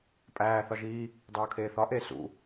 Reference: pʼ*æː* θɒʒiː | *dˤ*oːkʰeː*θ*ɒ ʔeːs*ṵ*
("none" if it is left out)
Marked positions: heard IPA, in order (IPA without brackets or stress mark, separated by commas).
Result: æː, dˤ, θ, ṵ